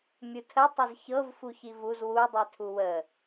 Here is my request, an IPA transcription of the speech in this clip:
mʲutʰə tˤəzçɤv fuçivuz wu dˤitʰuwə

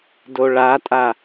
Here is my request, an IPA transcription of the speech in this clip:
doɭatʼa

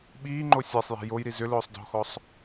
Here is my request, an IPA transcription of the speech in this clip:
ɓiːŋ͡ǃo sʲasˤjɛ̤ jojɾi zʏlʊːsˤ dɔ̤xɔsˤ

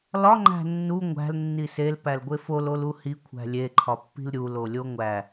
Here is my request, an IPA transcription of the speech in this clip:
lɒ ŋ͡ǃæ̤nːu ŋʷæ̤l nːisel pælɡʷefol oluhi kʷʰæ̤lʲe ǃʰɒpːi̤lɾʲu lolʲoŋʷæ

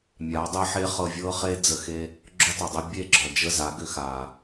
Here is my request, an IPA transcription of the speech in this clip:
mʲa˨˦ dˤe˦ħe˦χɤ˧ vʲɤ˦χe˦ d͡zə˧xe˦ | ɡ͡ǁo˦tˤə˨dˤe˦ bʲe˦˨ɡ͡ǁɔ˨d͡ʒə˦˨ za˨˦ɡʏ˧ xa˨

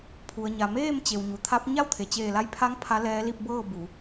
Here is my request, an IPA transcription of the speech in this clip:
pʰu˩ə̯ɲa˩meː˥˨m t͡ɕe˩wɲu˩t̪ʰa˧˥p̚ ɲa˥˨wt̪ʰe˩t͡ɕeː˧˩la˧j pʰa˧˥ŋ pʰa˧˥lɛː˧˥ li˧p̚bɤː˥˨ bu˩˧

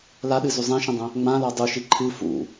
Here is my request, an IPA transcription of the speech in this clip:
laɗɨzu zˤĩʃə̃dˤə̃ | ŋ͡mãlɔ dˤuʃi ǃʰɨ fṵ

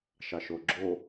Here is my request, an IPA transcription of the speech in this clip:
ʃɑʃoɡ͡ǁo

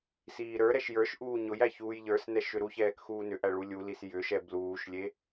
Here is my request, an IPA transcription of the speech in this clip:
siːɾə˞ɾɛʃ jə˞ʃ ʔuːɲʊjæ çuːjʎə˞snɛ ʃʏɾuçɛːk xuːnʏʔæ ɭulʲulis jʏʃɛ bluːʃlʲe

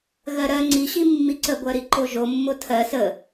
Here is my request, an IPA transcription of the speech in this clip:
ɣɜɾɜ ŋ͡ǀiɕi mːiǀəɡʷɜɾi ǃoʒomːo tʰɜ sə

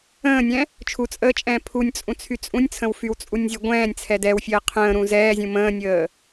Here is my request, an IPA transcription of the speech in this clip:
ə̃ːnʲɛ̃ | t͡ʃʰut͡sʼəːt͡ʃʼɛ̃ː pʰunʲt͡sʼũt͡sʰy t͡sʼũnʲt͡sʰə̃w fywt͡sʼunʲzʲɛ ɡʷɛ̃ːnʲt͡sʰɛ dɛwfʲəː qʰə̃ːɾũ zɛːzʲũ mə̃ːnʲəː

